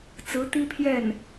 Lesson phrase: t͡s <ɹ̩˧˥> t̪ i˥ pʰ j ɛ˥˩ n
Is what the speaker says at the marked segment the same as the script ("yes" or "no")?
yes